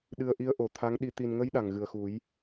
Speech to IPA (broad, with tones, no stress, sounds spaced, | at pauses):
ɗ ɨ˧ ə̯ ʔ i˧˥ ə̯ ʔ o˨˩ t̪ʰ a˧˥ ŋ ɗ i˧ t̪ i˨˩ n ŋ ə˧˥ j ɗ a˨˩ ŋ ɣ ɨ˨˩ ə̯ x u˨˩˦ j